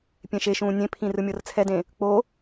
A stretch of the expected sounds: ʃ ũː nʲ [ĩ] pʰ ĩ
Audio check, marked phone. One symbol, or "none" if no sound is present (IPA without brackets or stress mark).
ẽ